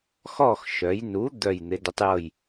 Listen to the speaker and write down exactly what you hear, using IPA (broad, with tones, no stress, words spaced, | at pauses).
xɔ˦˨xʃœ˩˧jnu˨˥ d̪œ˦˨j n̪ɪ˩˧də˨˥tˤjɤ˦˨j